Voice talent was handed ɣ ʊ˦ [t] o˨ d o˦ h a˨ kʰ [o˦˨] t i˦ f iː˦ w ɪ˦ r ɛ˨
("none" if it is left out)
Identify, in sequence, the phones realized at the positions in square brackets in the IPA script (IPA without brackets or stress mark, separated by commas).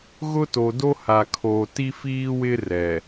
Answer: t, o˨